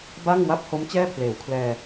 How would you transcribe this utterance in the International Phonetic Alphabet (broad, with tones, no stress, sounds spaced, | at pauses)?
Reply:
b a˥˩ ŋ w a˥˩ p̚ h o˦˥ m t͡ɕ ɛː˥˩ pʰ l eː˩˦ w kʰ l ɛː˧